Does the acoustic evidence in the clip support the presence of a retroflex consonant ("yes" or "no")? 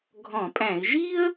no